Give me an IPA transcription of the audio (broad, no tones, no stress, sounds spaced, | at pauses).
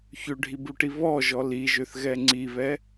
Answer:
ç ø ɖʱ i b u ʈ i β ɔ ʒ ɔ l i ʒ ø θ ɣ ɛ ŋ͡ǀ i β ɛ